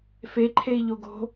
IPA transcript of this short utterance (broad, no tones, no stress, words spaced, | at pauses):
fe ǃʰei̯ʎoɡo̤